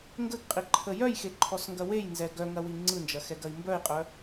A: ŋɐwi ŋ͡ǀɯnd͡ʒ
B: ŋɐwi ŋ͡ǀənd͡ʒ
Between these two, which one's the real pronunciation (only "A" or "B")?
A